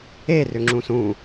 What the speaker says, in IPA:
e r ʏ ŋ͡ǁ ũ s ũ

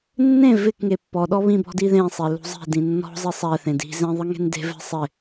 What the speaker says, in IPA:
nː ẽ v ɪ k ŋ e pː ɔ ɗ ɔ β ĩ b ɔ̤ d i ð ẽ sˤ e l ṳ zˤ i̤ d ĩ nː ɔ̤ zˤ e sˤ ɛ θ ẽ d i̤ z ẽ ðˤ ɨ ŋ e̤ n d e̤ v ɛ̤ sˤ ɪ

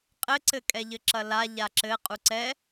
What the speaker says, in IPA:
qʼ ɘ ǀ ɘ kʼ ɛ ʎ ɘ ǁ ɐ l a ʎ a ǁ ɘ qʼ u ǀ ɛ

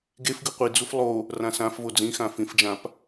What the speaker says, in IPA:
ɡ e f ɡ ɯ qʷ i d͡z u f lˠ o | r ã s ã f v o d͡z ĩ x ã f ĩ f d͡ʒ ã p

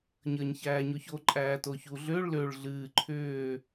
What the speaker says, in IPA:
ɲ əː ɲ ç æː ɲ o ç o ǃʼ æː t o ç u ɮ ʏː ɭ l ø ɭ ɮ ɨː ǃʰ ʏː

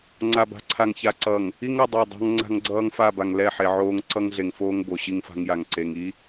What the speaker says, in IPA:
ŋ͡ǀ a˨ b a̤˨ ǀʰ a˨ ŋ ç a˨ ǀ ʌ˨ ŋ | i˦ ŋ ʌ˦˨ dˤ o˦˨ dˤ a̤˦ ŋ ŋ͡ǀ a̤˦ ŋ ɡ͡ǀ ʌː˦ ŋ f a˦˨ b a˨ ŋ l ɛ˦˨ ħ e˨ ʕ oː˦ ŋ ǀ ʌ˦ ŋ ɮ e˨ ŋ f oː˦ ŋ b o˨ ɕ i˦ ŋ f a̤˦ ŋ j a˨ ŋ ǀ e˨ ŋ i˦

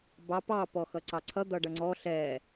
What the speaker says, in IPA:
b ɑ p ɑ p ɔ x ʌ ǀ ɑ ǀʰ ʌ d̪ ʌ ɖ ʌ ŋ͡ǀ ɔ ɬ ɛ

